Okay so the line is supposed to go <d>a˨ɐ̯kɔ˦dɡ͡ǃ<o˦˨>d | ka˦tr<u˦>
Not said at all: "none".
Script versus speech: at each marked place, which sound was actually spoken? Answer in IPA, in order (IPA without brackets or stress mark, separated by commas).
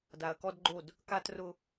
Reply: d, o˦˨, ʊ˦